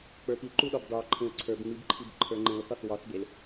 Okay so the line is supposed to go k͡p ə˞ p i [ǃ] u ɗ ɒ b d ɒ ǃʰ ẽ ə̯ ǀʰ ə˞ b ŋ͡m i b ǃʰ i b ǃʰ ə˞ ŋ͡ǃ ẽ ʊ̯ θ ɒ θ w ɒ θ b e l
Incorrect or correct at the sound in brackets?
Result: correct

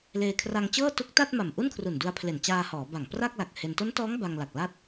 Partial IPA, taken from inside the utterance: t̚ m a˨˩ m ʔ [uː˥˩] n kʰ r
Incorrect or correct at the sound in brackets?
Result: incorrect: u˥˩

